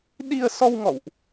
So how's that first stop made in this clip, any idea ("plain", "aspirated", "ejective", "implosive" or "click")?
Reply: implosive